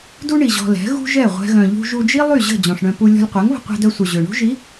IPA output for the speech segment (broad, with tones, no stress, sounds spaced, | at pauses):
d u˦ ɳ i˨ ʑ ɔ̤˧ l ɛ̤˨˦ ɣ ṳ˦ ʒ ɛ˦˨ ʁʷ ɛ̤˦ ɣ œ̃˧ ʎ ṳ˧ ʒ u˧ d͡ʒ i˦ lˠ y˦˨ ʑ ə̤˦˨ d͡ʑ ɔ̃˨ ʂ ɳ œ̃˧ p u˧ lʲ ɔ̤˧ lʲ qʷ ɛ˨˦ ŋ β ə̤˧ qʷ ɛ̤˧ d œ˧ sʷ œ˨ ʑ ø˨ ɳ ṳ˦ ʒ i˨˦